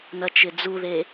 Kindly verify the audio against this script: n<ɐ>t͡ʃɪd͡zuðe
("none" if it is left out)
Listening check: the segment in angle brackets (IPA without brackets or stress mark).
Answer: ɐ